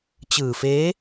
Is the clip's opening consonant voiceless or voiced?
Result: voiceless